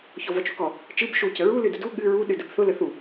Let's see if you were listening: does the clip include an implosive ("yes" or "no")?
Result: yes